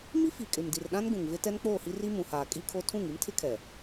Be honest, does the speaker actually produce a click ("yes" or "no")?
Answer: no